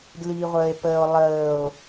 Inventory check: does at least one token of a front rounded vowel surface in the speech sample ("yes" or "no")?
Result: no